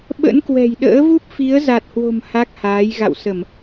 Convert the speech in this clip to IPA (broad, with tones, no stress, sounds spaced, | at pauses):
ɓ ə̰˧˥ n k w ɛ̤˨˩ j ɗ ə̰ː˧˥ v u˦˥ p̚ f i˨˦ ə̯ z a˨˩ t̚ h w o̤˨˩ m h a˦˥ k̚ h aː˨˦ j ɣ a̰˧˨ w s ə˧˩˨ m